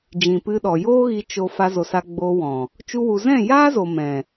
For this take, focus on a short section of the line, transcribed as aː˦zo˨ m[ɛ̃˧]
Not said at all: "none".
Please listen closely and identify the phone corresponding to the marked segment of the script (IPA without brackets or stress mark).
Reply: ɛ̃˨